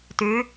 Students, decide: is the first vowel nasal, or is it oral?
oral